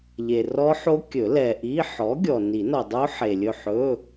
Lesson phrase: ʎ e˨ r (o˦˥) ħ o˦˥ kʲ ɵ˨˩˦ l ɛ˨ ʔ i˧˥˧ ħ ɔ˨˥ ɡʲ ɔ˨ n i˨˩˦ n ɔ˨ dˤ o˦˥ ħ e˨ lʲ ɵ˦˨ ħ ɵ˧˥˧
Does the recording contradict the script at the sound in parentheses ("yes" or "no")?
yes